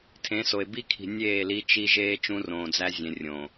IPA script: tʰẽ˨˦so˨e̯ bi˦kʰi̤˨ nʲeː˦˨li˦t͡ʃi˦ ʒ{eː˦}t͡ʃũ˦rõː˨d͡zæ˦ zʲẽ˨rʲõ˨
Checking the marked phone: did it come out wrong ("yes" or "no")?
no